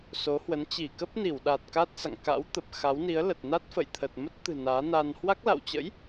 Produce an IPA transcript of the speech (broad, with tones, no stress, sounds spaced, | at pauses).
s o˨˦ h w ə˨˦ n t͡ɕ i˧˩ k ə˦˥ p̚ n i˧˩ w ɗ aː˨˩ t̚ k a˦˥ t̚ s a̰˧˨ ŋ k a̰˧˥ w t̪ ə˨˩ p̚ x a˨˦ w n i˨˦ ə̯ l ə˨˩ t̚ n a˦˥ t̚ f ə̰˧˨ j t̪ʰ ə˨˩ t̚ m ə˦˥ t̚ t̪ ɨ̤˨˩ n aː˨˦ n a˧ n h w a˦˥ k̚ l a̰˧˨ w t͡ɕ ə̰˧˥ j